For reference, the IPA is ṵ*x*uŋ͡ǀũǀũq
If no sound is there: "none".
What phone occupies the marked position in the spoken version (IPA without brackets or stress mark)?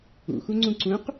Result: x